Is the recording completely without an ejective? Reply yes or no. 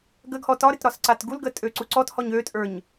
no